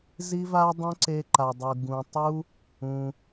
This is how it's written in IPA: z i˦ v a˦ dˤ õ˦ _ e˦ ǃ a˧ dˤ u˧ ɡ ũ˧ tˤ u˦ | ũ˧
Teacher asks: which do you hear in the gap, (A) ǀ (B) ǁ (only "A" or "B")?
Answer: A